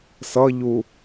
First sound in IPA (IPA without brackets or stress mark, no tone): s